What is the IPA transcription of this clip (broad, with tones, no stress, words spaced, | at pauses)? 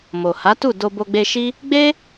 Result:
mo˨ha˨˦tu˦˨ do˧bo˧ɡ͡be˧ ʃi˦ | ɡ͡be˦